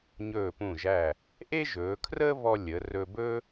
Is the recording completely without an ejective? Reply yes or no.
yes